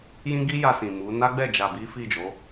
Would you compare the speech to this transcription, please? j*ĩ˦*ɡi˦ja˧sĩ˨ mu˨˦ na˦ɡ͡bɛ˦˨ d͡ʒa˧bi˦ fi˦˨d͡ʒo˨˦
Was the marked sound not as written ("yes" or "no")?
no